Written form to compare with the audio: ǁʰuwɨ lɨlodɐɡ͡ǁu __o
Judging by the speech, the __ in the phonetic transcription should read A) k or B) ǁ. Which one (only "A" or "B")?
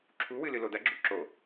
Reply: B